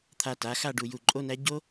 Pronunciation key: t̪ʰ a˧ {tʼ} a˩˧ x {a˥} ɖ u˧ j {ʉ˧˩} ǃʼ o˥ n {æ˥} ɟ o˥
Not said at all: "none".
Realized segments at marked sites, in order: t, a˥˧, u˧˩, æ˥

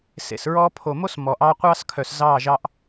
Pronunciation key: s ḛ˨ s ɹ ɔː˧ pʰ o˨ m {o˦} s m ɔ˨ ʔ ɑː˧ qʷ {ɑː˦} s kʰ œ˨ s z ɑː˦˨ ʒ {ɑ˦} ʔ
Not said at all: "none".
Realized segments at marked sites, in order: o˦, ɑː˦, ɑ˦

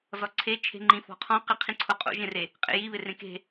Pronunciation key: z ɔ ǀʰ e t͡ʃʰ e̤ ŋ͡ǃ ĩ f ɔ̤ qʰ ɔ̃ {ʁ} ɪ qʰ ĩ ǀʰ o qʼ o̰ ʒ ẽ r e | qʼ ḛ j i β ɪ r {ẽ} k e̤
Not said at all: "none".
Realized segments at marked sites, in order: q, ẽ

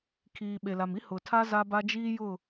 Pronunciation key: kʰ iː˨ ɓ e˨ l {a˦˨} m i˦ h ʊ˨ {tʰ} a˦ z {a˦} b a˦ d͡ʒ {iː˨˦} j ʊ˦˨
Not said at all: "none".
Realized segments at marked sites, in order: a˨, tʰ, a˦, iː˦

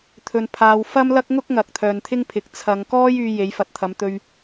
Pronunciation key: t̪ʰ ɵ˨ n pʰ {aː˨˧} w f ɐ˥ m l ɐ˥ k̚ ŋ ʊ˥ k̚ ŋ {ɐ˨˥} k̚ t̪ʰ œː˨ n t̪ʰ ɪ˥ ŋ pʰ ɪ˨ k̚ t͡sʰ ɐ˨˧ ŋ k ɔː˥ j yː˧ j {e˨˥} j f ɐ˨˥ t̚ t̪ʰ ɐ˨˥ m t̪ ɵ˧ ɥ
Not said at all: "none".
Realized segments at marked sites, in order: aː˨˧, ɐ˨, e˨˥

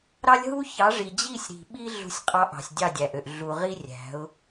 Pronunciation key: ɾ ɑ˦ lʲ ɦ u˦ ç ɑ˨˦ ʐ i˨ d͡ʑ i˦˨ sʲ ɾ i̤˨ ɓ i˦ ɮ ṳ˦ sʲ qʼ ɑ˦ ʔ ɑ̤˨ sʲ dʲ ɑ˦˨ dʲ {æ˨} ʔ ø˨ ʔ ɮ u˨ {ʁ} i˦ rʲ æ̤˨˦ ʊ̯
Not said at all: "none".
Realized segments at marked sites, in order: æ˨, ʁ

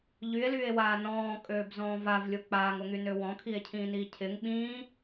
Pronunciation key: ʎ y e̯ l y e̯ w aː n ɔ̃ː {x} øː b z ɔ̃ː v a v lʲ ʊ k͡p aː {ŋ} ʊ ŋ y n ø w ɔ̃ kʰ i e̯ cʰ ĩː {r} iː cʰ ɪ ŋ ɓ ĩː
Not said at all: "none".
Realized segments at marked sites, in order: kʼ, ŋ, n

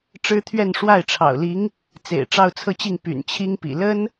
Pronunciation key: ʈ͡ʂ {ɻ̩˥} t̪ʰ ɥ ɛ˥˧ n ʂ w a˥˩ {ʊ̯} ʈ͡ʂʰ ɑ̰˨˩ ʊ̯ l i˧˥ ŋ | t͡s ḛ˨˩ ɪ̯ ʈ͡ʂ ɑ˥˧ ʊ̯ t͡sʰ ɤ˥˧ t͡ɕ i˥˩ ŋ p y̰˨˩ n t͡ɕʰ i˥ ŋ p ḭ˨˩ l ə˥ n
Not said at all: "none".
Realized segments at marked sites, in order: ɻ̩˥, ɪ̯

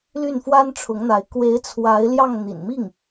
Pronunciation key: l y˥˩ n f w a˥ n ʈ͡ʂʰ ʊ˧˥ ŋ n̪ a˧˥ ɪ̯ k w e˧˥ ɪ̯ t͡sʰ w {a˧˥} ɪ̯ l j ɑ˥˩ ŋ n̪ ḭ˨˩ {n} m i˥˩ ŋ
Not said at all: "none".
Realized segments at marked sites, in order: a˧˥, n

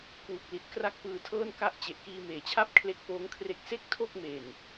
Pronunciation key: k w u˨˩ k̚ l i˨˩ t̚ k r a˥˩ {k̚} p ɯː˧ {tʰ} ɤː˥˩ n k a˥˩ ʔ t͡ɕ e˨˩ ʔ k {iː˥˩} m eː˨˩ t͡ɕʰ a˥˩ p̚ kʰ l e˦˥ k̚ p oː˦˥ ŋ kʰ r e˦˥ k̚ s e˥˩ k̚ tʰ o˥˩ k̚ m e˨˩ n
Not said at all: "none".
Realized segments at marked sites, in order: k̚, tʰ, iː˧

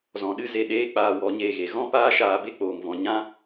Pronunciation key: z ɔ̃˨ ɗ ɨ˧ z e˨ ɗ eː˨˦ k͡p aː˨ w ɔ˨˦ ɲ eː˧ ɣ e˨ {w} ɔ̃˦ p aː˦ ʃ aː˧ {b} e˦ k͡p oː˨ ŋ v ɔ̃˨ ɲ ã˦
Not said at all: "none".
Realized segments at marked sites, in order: ɣ, b

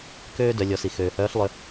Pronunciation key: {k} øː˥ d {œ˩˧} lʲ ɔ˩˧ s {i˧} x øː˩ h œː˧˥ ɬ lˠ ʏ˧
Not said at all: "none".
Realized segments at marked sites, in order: k, œ˩˧, i˩

